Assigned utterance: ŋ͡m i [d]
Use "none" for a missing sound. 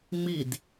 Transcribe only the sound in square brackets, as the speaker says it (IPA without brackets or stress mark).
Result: d